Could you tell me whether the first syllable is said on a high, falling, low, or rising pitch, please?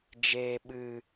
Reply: low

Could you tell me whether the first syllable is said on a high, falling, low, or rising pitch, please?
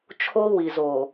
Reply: high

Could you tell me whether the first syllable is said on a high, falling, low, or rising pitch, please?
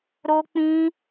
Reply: high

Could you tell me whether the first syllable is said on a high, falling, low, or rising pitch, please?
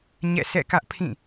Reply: falling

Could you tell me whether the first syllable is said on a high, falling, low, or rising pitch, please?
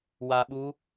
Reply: low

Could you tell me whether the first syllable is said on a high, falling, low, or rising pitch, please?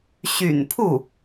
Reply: low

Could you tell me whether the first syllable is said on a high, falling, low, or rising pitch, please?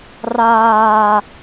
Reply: high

